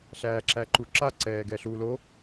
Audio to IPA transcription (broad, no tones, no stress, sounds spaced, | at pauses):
ɬ æː ǁ æ ǃ u ǁ a ǀ ɛː ɡ ɛ ɬ u l o